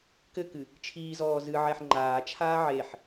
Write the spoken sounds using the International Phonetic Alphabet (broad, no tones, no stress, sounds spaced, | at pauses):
k ɘ k ɨ | t͡ʃʰ iː z ɔː z ɨ ʕ ɛ ħ ŋ͡ǃ aː t͡ʃʰ aː ʕ e ħ